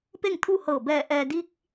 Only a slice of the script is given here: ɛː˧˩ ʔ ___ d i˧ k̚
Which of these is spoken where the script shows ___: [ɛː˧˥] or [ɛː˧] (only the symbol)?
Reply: ɛː˧